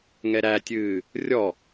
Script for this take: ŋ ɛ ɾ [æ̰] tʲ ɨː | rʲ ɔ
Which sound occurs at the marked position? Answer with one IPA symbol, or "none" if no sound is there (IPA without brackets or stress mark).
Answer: æ